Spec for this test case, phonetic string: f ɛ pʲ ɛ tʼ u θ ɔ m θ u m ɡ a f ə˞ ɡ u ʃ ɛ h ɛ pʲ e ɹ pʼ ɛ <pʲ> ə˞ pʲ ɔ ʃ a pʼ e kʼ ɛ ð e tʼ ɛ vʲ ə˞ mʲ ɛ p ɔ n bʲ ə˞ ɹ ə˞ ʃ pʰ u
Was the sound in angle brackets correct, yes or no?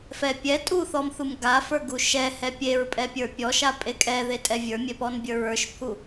yes